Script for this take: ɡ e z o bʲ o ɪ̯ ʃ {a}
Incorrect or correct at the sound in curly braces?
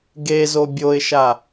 correct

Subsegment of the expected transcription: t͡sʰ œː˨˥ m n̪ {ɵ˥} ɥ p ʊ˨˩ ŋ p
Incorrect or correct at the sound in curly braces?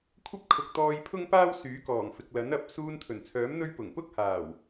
correct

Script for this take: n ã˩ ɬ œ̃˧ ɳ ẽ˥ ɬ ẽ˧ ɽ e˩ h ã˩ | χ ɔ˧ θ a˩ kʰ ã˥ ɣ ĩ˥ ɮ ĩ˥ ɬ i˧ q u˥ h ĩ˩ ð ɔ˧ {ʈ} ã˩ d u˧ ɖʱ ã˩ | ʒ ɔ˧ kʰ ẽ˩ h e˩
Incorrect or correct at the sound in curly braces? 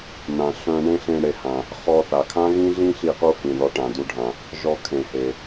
correct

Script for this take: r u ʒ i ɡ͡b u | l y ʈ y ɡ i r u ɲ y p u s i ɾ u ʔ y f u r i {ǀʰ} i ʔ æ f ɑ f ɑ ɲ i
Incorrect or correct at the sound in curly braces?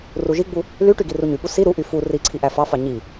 correct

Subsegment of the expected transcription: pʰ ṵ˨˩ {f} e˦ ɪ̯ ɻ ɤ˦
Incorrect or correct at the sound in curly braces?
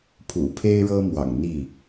incorrect: pʰ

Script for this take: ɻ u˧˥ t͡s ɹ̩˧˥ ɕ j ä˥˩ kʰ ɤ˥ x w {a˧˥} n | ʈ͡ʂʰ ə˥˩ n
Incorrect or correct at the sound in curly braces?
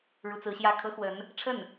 incorrect: ə˧˥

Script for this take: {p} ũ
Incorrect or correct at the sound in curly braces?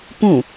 correct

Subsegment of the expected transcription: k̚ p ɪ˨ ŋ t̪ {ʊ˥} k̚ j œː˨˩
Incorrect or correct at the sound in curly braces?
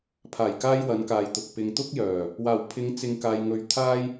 correct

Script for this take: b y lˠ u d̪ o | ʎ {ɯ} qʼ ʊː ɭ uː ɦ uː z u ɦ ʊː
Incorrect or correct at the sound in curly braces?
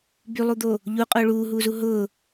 incorrect: u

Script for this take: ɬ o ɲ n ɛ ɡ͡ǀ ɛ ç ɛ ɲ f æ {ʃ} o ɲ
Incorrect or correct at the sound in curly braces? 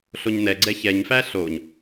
incorrect: ɬ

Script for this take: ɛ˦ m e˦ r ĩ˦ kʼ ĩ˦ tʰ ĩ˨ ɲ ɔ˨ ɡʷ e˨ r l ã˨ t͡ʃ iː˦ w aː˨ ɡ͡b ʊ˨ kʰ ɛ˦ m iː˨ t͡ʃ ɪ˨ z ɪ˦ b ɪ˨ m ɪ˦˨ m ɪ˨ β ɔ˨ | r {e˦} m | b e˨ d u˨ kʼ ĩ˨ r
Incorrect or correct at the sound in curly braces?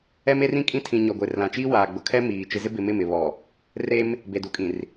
correct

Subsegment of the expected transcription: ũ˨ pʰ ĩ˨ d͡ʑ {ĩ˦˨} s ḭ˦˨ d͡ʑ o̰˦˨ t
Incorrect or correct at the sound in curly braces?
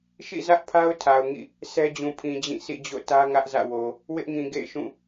correct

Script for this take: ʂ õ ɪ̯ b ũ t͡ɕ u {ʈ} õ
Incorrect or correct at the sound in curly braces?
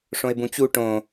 correct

